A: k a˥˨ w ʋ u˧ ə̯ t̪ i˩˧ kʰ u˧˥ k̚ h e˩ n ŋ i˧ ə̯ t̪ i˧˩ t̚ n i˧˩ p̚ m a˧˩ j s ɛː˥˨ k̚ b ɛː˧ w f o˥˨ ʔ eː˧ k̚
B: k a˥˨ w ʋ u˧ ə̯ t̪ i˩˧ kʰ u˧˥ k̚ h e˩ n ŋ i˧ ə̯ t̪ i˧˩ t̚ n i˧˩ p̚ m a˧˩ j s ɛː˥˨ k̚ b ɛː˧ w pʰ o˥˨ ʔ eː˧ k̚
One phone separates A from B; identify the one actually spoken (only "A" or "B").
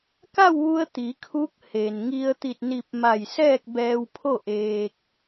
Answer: B